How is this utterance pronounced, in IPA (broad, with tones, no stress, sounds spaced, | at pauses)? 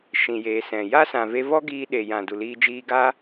ʃ ĩ˨ j eː˨ s ɛ̃˨ j a˦ s ã˨ v e˧ v ɔ˦ ɡ iː˧ ɗ e˨ j ã˨ d u˨ l iː˧ d͡ʒ iː˧ ɡ aː˦